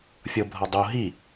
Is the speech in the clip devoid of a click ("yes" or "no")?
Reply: yes